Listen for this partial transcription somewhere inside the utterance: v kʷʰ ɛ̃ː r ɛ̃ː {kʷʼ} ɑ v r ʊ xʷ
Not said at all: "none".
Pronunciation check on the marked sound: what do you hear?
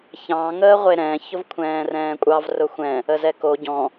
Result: kʷʼ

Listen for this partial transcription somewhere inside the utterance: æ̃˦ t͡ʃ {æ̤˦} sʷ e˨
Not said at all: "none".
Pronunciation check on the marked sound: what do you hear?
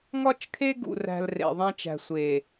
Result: æ̤˨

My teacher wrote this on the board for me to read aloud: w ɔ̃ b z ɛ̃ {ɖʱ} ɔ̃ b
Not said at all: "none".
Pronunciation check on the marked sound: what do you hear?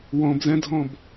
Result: dʱ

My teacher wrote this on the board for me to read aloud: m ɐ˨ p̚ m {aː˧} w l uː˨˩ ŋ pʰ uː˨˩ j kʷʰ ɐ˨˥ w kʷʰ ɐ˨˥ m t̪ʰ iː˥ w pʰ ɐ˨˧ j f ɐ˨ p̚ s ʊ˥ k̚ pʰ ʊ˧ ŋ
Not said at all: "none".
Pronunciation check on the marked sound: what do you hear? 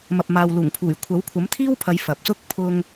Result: aː˨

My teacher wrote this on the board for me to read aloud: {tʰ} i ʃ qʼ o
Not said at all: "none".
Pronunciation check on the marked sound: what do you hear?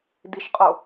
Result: d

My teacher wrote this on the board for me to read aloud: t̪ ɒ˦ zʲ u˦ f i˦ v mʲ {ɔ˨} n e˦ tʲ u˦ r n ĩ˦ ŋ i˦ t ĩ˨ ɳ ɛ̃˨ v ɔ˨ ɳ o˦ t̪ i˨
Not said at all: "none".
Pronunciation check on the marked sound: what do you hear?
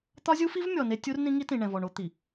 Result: ɔ˨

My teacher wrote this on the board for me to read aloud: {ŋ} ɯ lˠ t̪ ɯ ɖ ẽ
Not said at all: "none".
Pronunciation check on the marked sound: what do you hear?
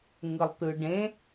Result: ŋ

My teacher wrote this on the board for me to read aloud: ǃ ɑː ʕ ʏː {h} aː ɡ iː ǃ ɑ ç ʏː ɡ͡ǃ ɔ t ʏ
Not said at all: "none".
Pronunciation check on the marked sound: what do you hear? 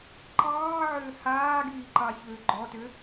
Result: h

